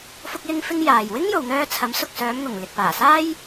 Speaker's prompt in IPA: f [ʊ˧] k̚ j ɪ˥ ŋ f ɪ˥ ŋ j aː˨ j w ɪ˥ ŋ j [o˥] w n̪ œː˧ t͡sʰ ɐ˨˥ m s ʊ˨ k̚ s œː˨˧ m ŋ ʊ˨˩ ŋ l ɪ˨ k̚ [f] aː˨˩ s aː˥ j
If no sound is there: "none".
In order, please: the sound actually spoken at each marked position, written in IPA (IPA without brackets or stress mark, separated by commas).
ʊ˥, o˨, p